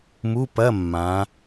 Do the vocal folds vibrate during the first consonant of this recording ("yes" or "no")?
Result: yes